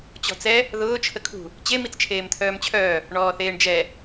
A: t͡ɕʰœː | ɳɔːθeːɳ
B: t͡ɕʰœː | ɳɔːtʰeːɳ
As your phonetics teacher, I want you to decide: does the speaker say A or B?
A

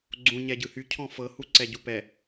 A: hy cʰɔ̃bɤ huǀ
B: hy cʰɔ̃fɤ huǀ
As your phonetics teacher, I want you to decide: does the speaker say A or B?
B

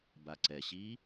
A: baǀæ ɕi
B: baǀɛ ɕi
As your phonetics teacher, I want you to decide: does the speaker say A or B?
B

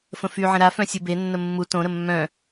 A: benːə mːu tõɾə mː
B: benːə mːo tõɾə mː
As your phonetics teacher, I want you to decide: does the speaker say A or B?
A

